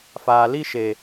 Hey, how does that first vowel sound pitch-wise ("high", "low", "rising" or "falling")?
low